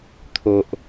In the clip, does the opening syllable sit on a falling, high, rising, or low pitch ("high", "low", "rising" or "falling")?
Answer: low